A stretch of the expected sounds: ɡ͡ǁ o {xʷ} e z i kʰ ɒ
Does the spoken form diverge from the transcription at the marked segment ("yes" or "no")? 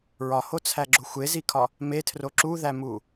no